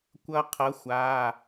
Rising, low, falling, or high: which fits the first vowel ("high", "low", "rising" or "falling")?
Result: high